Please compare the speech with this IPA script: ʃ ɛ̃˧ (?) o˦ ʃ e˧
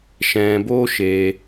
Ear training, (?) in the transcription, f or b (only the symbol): b